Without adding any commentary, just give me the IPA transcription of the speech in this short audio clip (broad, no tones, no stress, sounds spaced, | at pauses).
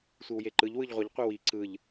sʷ i w j e ǃ ɯ ʎ w ɯ ʎ ʁʷ ʌ ʎ qʷ e w i ǀ ɯ ʎ